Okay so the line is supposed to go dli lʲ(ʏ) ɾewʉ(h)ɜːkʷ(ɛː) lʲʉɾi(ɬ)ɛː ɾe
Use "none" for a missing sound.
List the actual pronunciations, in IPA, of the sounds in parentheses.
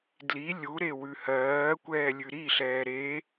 u, h, ɛː, ɬ

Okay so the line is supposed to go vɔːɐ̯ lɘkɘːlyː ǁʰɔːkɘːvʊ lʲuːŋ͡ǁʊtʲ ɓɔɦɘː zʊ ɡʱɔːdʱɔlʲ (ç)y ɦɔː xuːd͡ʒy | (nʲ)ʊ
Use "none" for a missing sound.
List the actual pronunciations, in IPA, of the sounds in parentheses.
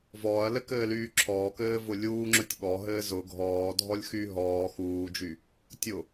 x, tʲ

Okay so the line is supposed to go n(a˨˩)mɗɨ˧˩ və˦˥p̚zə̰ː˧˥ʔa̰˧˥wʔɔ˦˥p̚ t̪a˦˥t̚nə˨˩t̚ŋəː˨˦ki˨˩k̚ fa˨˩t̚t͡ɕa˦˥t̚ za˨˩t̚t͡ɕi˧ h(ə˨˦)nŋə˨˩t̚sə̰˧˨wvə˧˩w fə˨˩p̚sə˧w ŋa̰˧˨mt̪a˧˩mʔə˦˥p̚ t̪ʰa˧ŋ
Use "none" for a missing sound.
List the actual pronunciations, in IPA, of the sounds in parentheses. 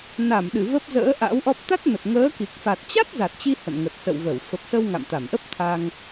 a˧˩, ə̰˧˨

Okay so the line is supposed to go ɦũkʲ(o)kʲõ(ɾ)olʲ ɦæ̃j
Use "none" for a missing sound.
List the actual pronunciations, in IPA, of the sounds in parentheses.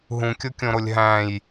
o, ɾ

